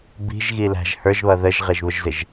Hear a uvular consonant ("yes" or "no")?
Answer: yes